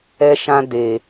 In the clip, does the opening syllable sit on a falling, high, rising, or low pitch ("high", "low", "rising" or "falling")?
high